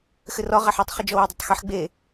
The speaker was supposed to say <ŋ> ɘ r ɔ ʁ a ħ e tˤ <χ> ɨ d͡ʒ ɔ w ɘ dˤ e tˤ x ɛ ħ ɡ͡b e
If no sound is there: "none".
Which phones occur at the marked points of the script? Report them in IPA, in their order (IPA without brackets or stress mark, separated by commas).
x, χ